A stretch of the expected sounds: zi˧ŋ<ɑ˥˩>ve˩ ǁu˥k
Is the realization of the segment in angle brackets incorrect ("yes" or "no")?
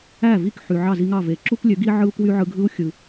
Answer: no